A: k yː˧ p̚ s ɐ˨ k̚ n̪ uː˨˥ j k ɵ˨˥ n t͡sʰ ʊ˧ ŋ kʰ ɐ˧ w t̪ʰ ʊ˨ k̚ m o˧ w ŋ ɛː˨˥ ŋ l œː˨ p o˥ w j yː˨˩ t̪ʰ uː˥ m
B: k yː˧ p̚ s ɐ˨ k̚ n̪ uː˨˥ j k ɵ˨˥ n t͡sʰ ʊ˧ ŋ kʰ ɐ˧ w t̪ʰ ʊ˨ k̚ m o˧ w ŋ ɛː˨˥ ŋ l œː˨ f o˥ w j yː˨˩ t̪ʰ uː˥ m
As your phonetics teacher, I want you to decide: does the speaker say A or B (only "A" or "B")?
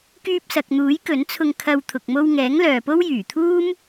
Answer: A